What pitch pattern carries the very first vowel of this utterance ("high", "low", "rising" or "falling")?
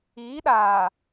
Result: rising